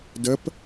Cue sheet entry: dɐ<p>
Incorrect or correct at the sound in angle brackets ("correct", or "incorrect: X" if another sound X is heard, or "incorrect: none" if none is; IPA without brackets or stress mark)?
correct